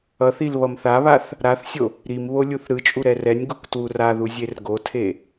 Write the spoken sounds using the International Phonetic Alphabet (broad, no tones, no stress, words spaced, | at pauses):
ʌθil βʌmθaβaθ | ɾaθsʲo | ɾim βolʲuθɾɯt͡ʃʼu ɾɛrɛnʲɡuk twuraðu zʲerɡotʰe